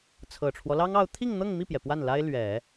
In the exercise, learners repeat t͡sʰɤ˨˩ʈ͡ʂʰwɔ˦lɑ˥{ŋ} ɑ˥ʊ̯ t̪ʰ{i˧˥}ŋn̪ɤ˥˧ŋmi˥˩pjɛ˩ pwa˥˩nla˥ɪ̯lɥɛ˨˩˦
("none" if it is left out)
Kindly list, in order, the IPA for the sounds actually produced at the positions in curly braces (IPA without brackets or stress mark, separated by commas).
ŋ, i˥˧